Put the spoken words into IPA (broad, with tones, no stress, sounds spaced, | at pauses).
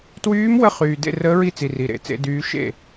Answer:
t w yː˧˥ m w ə˧˥ χ yː˨˩ d ḛ˥˩ r əː˧˥ ɹ i˥˩ t͡s i˨˩ r i˨˩ ɾ ḛ˥˩ t͡s ḛ˧˥ d yː˧˥ ʃ ḛ˥˩